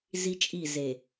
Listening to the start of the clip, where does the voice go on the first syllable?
high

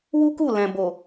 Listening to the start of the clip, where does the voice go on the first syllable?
high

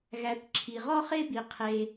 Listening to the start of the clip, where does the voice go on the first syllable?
rising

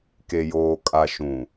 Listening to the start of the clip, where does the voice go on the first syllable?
low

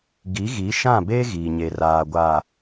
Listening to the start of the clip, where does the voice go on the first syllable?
rising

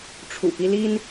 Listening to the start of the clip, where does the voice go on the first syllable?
low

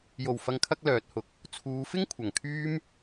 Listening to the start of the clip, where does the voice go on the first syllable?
low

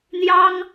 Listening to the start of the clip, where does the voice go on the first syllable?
high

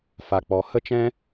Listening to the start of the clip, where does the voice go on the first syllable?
low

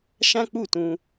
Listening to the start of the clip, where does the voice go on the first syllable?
high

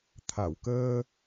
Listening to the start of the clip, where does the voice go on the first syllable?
low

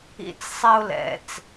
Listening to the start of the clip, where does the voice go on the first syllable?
falling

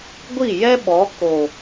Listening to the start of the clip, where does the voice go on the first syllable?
falling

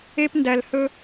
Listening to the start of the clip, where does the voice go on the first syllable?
high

